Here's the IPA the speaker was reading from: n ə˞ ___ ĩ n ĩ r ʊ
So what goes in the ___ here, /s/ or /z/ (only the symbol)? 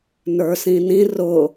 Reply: s